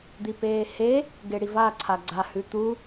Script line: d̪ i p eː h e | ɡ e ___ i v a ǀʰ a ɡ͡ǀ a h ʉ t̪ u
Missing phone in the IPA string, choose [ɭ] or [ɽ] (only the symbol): ɽ